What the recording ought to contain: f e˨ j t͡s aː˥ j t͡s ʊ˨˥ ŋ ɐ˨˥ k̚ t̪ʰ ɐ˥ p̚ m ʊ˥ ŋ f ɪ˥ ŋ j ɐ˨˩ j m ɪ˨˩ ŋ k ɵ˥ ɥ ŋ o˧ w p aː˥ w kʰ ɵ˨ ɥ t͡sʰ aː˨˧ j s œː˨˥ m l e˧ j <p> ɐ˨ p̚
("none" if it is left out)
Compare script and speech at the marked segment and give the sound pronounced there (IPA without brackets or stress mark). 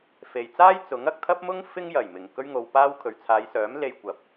kʷ